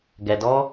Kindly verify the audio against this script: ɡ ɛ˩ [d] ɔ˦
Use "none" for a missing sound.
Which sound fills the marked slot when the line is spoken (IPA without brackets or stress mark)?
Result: d